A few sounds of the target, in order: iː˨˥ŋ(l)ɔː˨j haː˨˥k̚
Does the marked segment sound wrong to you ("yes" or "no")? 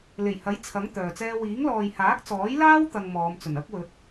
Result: no